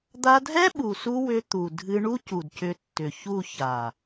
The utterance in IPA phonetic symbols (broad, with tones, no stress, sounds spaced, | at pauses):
d̪ a˧ dʱ ɛ˦ ɓ u˨ s u˧ w ʏ˧ t̪ u˨ dʱ ɨ˧ ɳ u˦ c u˨ d c ʏ˨˦ tː ʏ˨ ç u˦˨ ç a˨